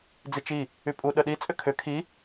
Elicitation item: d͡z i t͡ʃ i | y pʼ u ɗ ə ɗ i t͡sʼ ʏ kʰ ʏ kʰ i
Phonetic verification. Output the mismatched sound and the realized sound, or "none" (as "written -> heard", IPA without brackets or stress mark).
none